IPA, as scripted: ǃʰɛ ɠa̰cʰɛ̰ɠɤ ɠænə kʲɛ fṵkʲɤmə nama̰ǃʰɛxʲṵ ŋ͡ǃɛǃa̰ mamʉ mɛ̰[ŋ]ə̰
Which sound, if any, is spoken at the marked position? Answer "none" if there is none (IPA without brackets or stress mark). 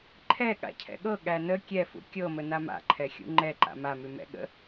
ɠ